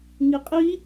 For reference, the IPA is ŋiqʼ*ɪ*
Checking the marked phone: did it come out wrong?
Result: yes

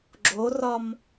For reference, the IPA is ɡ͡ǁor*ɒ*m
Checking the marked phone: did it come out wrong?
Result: no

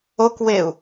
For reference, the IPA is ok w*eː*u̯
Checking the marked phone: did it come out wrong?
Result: yes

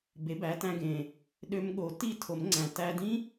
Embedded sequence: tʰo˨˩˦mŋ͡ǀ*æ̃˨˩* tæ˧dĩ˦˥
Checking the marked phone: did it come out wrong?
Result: no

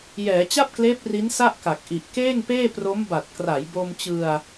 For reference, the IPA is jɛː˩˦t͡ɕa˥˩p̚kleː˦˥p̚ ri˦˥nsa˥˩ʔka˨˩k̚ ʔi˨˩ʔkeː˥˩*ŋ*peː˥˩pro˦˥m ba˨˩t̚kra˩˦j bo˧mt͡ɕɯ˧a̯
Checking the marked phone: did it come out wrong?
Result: no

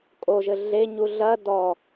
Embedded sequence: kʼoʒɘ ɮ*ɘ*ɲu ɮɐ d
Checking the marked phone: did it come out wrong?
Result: yes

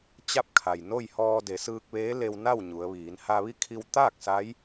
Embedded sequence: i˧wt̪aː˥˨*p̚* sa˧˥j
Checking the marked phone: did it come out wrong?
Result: yes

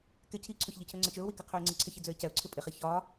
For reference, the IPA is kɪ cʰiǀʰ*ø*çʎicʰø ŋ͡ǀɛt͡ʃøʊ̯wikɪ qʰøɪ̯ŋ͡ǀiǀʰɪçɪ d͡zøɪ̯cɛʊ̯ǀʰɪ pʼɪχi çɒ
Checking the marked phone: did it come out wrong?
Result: no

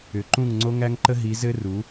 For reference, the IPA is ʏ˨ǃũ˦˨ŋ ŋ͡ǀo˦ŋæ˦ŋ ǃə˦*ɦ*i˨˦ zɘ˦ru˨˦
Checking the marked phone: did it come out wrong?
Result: no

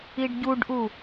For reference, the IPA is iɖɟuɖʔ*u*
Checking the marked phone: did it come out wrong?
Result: no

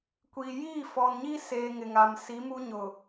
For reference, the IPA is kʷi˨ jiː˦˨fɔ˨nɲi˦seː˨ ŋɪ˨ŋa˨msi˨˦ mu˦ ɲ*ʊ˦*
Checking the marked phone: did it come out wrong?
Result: yes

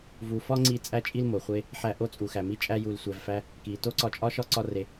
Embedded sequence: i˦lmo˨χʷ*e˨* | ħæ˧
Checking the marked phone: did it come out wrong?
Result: yes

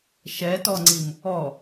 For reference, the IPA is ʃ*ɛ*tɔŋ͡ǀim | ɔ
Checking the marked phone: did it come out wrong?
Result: no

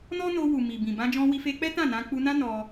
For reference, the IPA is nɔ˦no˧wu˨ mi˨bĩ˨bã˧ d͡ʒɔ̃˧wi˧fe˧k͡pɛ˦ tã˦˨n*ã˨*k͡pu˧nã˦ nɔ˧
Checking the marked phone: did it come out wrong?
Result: yes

